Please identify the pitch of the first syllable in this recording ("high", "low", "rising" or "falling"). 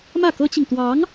falling